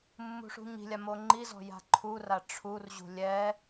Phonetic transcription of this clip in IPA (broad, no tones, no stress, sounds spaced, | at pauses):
mː ṳ ʂ ṳ ɲ i̤ lʲ a m o ŋ͡ǃ i z ɔ̤ j a̤ ǃʰ u r a ʈ͡ʂʰ u r ʑ ṳ lʲ ɛ